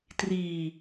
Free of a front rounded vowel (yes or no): yes